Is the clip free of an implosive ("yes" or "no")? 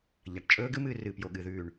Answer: no